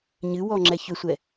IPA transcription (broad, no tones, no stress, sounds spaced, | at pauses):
ɲ ɨ w ɔ ŋ͡ǁ ɛ ç ʏ sʷ ɛ